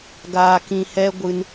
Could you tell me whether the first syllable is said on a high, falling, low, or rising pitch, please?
low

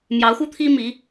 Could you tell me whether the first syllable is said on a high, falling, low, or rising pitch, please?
rising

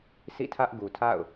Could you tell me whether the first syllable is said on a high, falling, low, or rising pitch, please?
falling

